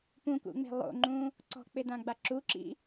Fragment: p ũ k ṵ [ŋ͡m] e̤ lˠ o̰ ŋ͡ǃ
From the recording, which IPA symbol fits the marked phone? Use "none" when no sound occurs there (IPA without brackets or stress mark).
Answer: ŋ͡m